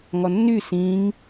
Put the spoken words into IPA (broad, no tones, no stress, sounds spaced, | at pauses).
ŋ ɔ nː y s ĩ ŋ